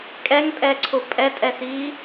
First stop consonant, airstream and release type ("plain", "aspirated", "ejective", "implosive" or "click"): ejective